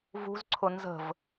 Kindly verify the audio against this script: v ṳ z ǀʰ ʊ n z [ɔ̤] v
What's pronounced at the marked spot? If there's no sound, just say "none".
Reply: ə̤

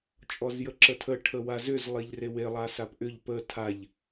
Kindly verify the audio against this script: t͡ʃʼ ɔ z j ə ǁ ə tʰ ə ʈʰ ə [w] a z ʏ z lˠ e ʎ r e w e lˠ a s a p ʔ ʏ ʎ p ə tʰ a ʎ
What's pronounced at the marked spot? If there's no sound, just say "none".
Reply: w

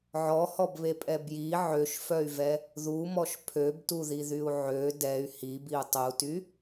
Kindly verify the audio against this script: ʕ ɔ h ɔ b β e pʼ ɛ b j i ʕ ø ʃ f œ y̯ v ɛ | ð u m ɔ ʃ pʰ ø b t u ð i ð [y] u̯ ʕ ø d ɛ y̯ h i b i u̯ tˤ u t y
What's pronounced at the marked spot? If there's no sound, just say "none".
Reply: y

